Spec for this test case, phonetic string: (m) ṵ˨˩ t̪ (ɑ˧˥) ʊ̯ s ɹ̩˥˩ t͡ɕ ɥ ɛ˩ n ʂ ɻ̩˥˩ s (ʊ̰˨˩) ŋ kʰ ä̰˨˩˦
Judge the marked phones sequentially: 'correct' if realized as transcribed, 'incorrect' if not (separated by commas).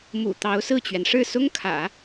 correct, correct, incorrect